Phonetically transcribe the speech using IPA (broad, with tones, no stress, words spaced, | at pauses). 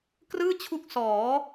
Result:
krɯː˥˩t͡ɕʰu˦˥k̚ sɔː˩˦